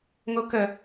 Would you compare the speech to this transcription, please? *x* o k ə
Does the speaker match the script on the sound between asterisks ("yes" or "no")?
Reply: no